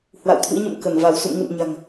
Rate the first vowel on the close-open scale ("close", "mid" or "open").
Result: open